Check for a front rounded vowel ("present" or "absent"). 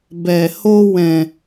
absent